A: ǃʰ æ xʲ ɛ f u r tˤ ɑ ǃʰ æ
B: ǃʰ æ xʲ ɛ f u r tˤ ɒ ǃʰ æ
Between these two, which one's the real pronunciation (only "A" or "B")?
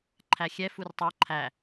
A